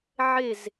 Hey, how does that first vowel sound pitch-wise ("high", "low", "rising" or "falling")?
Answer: falling